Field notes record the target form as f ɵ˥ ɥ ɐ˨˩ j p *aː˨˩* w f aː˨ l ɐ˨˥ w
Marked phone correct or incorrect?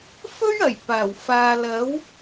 correct